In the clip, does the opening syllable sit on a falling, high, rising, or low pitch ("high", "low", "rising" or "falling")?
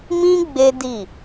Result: high